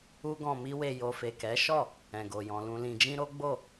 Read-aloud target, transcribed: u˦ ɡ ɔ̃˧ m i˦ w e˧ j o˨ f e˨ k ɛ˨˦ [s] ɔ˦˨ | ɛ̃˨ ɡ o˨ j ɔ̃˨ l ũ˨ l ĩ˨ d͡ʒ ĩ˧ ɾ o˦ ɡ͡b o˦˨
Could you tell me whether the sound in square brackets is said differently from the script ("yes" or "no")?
yes